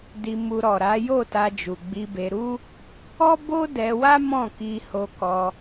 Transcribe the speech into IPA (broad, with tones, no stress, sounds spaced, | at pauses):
d i˧ m u˧ ɾ ɔ˨ ɾ a˨˦ j o˦˨ t a˧ d͡ʒ u˨ ɡ͡b i˧ b e˧ ɾ u˦ | ɔ˦ b o˦ d ɛ˧ w a˦ m ɔ̃˦˨ k i˧ h o˧ k ɔ˧